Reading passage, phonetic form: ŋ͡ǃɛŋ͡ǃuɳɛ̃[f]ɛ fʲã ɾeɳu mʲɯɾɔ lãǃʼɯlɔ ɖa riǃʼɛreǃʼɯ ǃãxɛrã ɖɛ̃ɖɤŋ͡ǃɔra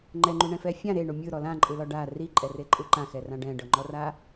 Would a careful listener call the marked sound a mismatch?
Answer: no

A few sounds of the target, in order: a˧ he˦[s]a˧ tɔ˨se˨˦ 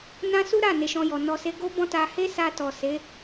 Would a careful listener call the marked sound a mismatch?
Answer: no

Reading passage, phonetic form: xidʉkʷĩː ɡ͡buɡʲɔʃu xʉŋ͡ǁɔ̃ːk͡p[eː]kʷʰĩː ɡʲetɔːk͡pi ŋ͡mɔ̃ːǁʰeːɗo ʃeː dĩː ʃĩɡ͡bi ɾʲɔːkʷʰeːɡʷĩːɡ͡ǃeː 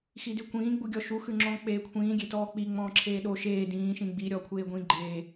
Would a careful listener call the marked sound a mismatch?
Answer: no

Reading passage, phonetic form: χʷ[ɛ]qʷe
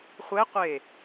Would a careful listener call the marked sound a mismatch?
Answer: no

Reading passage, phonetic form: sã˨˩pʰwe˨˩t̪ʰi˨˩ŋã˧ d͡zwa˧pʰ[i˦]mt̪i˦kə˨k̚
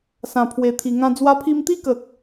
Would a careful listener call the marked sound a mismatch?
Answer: yes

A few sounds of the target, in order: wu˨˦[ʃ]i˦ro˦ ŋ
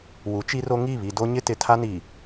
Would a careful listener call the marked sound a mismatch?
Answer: yes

